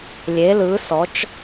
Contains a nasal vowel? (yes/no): no